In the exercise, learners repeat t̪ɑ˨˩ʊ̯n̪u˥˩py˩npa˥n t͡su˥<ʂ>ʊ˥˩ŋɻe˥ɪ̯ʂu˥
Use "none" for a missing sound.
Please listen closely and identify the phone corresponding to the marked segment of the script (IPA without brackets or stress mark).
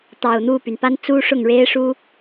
ʂ